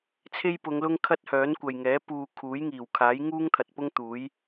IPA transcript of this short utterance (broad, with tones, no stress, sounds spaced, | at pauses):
t͡sʰ e˥ j p ʊ˨˧ ŋ l ʊ˥ ŋ kʰ ɐ˥ t̚ h œː˨˥ n kʷ ɐ˨ j ŋ ɛː˨˥ p uː˧ kʰ uː˨˥ j ŋ iː˨˩ w kʰ aː˨˥ j ŋ uː˥ ŋ t̪ʰ ɐ˨ t̚ p ʊ˥ ŋ t̪ uː˨˥ j